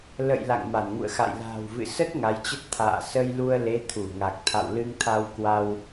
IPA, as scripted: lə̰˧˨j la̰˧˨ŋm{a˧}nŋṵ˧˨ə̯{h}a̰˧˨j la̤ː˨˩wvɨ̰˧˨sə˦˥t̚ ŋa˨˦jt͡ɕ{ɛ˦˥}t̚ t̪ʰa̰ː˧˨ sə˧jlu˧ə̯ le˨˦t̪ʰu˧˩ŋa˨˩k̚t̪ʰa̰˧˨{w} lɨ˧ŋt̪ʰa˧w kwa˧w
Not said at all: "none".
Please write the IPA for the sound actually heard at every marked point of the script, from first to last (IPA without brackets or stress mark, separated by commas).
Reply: a˧˩, x, ə˦˥, w